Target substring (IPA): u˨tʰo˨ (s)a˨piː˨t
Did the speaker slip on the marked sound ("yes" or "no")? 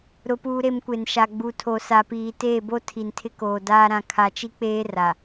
no